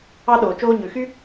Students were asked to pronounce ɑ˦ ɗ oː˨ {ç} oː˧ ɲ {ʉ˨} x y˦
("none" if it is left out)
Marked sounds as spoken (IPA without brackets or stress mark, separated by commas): t͡ʃ, ʉ˨